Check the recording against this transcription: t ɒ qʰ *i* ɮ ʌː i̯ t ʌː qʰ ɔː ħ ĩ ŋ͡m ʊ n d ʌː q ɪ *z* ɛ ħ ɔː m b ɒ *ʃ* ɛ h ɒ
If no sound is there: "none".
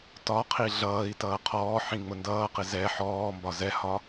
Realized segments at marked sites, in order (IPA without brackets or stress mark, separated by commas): i, z, z